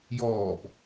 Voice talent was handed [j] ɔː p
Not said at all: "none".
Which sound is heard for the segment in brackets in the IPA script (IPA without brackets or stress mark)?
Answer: j